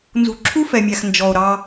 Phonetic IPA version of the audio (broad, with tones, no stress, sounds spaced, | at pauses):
n z ṳ˨ ǁʰ u˦ f ɛ˨ mʲ æ˨ x n d͡ʒ ɔ˨ o̯ ɾ ɑ˦